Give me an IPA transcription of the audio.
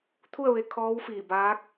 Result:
t̪ʰ u˥˨ ə̯ ʋ e˧ kʰ ɔː˧˥ w f iː˧˩ b aː˧˥ k̚

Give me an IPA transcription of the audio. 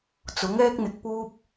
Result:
t͡s ʊ˨˥ ŋ ɛː˥ k̚ n̪ ɪ˨ k̚ p uː˥ p̚

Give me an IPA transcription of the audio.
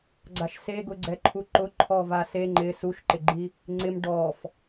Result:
ɡ͡ǀ a ʃ s e ɡ ʊ ɡ͡ǀ ɛ ǃʰ u ǃ ʊ ǃʰ ɔ v a s e ŋ͡ǃ ɪ s u ʃ ǃ ɪ ɡ͡ǃ i | ŋ͡ǀ ɪ m ɖ ɔ f

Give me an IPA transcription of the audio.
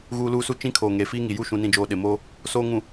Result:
ɣ uː˨ l uː˦ s u˦ t͡ʃ ĩ˦ kʰ oː˨ ŋ eː˨ f iː˦ ŋ i˨ j u˦˨ ʃ ũ˨ n ĩ˨ d͡ʒ oː˨ ɗ ɪ˨ m oː˦ | s oː˨ ŋ ũ˨

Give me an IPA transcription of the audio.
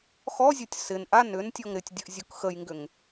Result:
x ɔ zʲ o tʲ s ɪ n ʔ a n ʏ n tʲ ɔ ŋ ɾ ɪ tʲ dʲ ə ʔ zʲ o k x ə j ŋ ɡ ʏ ŋ

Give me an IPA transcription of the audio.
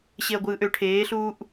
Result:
ɕ e ɐ̯ ɡʷ ɯː ʔ ø ʈʰ eː ɬ uː ʔ

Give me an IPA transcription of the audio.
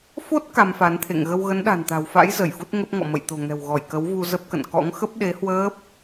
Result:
f o˦˥ t̚ k a˧ m f a˨˦ n t̪ʰ ḛ˧˨ ŋ ɣ ə˧ w ɣ ə˨˦ n ɗ a̤˨˩ n t̪ a̤˨˩ w f a̰˧˥ j z ə˧˩ j f u˦˥ t̚ ŋ ə˦˥ p̚ ŋ ɔ̰˧˨ m ə̰˧˨ j t̪ o̤˨˩ ŋ ɛ̤˨˩ w ɣ ɔ˧˩ j k ə˨˦ w v u˧ z ə˦˥ p̚ k ə̰˧˨ n k ɔ̰˧˥ ŋ x ə˦˥ p̚ ɗ e˨˦ h w əː˦˥ p̚

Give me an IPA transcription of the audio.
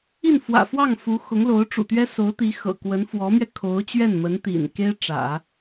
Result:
i˥˩ n f w ä̰˨˩ f w ɑ˥˩ ŋ f u˧˥ x ʊ˧˥ ŋ l o˧˥ ʊ̯ ʈ͡ʂ ṵ˨˩ t̪ ɥ ɛ˥ s o˧˥ ʊ̯ t̪ i˧˥ x ɤ̰˨˩ k w ə˧˥ n f w ɔ˧˥ m ɥ ɛ˧ kʰ o˧˥ ʊ̯ t͡ɕ ɥ ɛ˥˩ n m ə˧˥ n t̪ ḭ˨˩ n k e˥ ɪ̯ ʈ͡ʂ ä̰˨˩˦

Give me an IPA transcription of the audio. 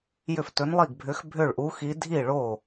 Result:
j ʏ˥˩ f t ɵ˧˥ n lˠ i˥˩ ɡ bʱ ʏ˧˥ x bʱ ʏ˥˩ ɭ ʔ u˧˥ x i˧˥ dʱ i˥˩ ɭ o˥˩

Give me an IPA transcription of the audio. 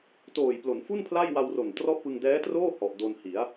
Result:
t oː˨˩ j p l o˩˦ n f u˥˩ n pʰ l a˥˩ j w a˧ w r o˨˩ n t r ɔ˥˩ ʔ p ɯ˧ ŋ d ɛː˦˥ t r oː˥˩ h ɔ˨˩ ʔ d o˧ n h i˩˦ a̯

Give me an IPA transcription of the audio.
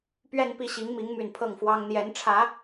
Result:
p ɥ ɛ˥˧ n p i˥˩ ɕ i˧˥ ŋ m i˧˥ ŋ m y˨˩ n pʰ ɤ˥˩ ŋ f w ɑ˥ ŋ n̪ j ɛ˧˥ n ʈ͡ʂʰ ä˧˥

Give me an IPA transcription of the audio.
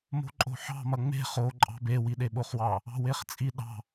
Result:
m o̤ ǃʼ o̤ ħ ɑ̤ m ɐ ŋ͡m e̤ χ o ǃʼ ɑ̤ b e w i ɗ e ɓ o χ w ɑ | ɑ̤ w e χ t͡sʼ i ɗ ɑ̤

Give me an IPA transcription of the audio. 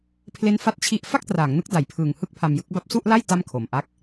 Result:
pʰ l e˦˥ n f a˥˩ t̚ t͡ɕʰ i˥˩ ʔ f a˥˩ k̚ t r aː˩˦ ŋ n ɯ˦˥ k̚ d a˨˩ j pʰ ɯː˨˩ ŋ h ɯ˥˩ k̚ pʰ a˧ m j ɯ˦˥ k̚ b a˥˩ p̚ s u˥˩ ʔ l a˥˩ j t a˥˩ m kʰ o˨˩ m ʔ a˥˩ k̚

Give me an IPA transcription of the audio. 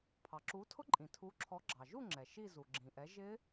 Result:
pʰ ɑ˩ ǁ u˨˦ tʰ ʊ˦˥ ǃʼ ĩ˩ tʰ u˨˦ ǁʰ ɔ˨˦ ɡ͡ǁ ɑ˩ ʒ u˥˧ ŋ͡ǁ ɛ˩ ʃ i˥˧ z u˩ ɡ͡ǁ ĩ˩ ʔ ɛ˨˦ ʒ ɪ˦˥

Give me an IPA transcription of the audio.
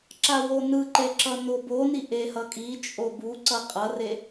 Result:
ǁ a w o n ɯ ǃ e ǁ ʌ n o b o n i ʔ e h ʌ kʼ i t͡ʃʼ o b u ǀ ʌ qʼ ʌ r e

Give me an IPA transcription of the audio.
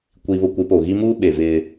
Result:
kʷ i˨ β ʊ˨ kʷ ɪ˨˦ p o˨ ɣ i˦ m uː˦ ɓ e˨ v ɪ˦

